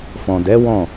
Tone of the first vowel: low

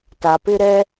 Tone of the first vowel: low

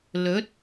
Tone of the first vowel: rising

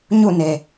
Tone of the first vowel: falling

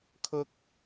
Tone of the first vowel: high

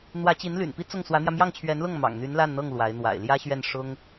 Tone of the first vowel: rising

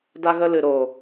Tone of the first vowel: high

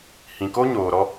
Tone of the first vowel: low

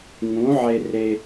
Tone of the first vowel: rising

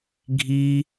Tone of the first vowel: high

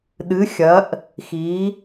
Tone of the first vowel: rising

